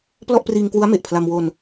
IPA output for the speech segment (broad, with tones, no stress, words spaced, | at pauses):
plɔ˥˩ʔpriː˧ŋkwu˦˥a̯ me˨˩ʔpʰla˧m wo˧n